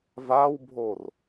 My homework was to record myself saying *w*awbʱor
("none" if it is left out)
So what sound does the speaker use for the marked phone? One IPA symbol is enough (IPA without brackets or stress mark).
v